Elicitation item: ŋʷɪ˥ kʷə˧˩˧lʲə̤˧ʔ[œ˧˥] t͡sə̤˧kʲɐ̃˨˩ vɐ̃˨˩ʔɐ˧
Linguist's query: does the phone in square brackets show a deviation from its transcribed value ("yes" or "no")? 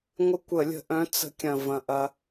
yes